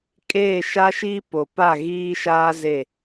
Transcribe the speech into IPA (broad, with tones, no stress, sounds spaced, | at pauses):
kʼ eː˦˨ ʃ a˦ ʃ iː˦ p o˨ p a˦˨ ɣ iː˦ ʃ aː˦ z e˦˨